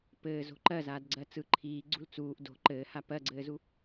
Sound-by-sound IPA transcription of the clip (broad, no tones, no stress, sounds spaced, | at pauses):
p ɘː z o̤ ǃ ɜ z aː d ɡ͡ǀ ɜ t͡s ɯ ǃʰ iː ɡ͡ǀ ṳ l t͡s uː ʔ d o̤ ǃ ɘː h a p ɜ ɡ͡ǀ ɘː z u